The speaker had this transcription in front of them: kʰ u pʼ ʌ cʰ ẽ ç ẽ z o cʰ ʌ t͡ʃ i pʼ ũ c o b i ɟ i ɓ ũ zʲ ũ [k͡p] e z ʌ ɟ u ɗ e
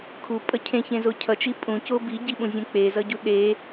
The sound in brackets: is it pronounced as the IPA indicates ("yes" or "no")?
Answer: yes